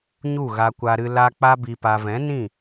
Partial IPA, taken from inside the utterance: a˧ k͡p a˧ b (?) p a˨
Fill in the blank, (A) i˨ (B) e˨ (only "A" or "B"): A